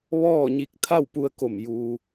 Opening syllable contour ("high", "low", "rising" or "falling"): falling